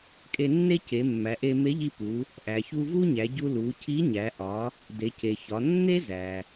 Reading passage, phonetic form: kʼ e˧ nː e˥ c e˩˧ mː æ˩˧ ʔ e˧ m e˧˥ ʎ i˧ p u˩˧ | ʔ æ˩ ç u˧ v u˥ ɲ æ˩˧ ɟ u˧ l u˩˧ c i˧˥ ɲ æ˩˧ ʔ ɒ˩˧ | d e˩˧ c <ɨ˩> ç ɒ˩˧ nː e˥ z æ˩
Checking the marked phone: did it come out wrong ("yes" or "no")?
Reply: yes